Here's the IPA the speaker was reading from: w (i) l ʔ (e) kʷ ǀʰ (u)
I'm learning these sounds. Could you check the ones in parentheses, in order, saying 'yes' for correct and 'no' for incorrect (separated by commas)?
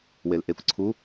no, yes, yes